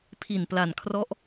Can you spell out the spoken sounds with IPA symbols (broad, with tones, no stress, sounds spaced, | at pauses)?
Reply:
pʰ i˨˩ n p l a˨˩ n kʰ r ɔ˦˥ ʔ